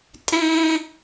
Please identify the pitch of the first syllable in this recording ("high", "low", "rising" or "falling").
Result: high